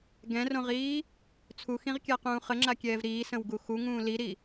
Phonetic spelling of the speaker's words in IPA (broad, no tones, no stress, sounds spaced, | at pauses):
ɡ ɛ̃ r õ ʁ iː | t͡sʰ u x ĩ ʁ kʲ a q ũː χ ə ŋ͡ǁ a kʲ ɛː v ɾ iː s ə̃ w ɡ u x u ŋ ũː l i ɾ i